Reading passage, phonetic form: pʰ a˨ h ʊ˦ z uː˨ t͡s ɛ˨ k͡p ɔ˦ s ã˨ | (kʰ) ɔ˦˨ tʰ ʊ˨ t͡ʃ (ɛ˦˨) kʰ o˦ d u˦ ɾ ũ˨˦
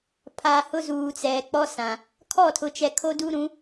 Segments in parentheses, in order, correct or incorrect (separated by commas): correct, incorrect